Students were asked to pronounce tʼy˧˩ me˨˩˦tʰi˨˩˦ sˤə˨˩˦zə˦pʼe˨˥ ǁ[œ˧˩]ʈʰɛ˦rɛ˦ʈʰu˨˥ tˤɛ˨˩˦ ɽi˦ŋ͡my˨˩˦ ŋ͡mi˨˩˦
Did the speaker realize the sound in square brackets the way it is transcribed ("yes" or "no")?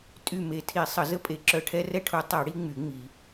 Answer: yes